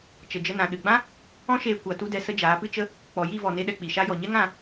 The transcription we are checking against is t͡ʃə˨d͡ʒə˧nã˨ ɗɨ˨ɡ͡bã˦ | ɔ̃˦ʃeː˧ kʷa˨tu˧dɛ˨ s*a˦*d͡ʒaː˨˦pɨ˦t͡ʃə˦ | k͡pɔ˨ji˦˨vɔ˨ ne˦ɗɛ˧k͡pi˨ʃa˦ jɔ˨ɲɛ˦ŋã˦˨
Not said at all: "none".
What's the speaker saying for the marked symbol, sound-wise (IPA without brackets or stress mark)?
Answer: ə˦